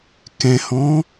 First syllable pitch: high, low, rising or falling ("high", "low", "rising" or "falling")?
low